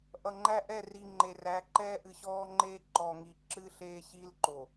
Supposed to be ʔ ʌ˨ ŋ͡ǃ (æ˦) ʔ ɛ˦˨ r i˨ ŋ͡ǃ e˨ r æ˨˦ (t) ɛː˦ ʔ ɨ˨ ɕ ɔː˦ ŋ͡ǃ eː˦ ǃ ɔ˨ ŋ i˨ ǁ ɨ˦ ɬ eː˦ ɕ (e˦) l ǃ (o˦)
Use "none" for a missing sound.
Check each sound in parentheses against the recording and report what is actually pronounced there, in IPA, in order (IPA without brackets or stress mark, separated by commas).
æ˦, ǃ, i˦, o˨